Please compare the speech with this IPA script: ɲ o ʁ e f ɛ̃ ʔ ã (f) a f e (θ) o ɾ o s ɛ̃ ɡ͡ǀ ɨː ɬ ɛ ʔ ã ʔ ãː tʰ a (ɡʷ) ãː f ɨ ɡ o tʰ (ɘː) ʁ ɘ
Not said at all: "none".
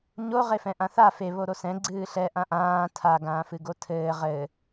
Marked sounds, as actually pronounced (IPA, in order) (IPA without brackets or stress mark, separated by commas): θ, β, ɡ, ɘː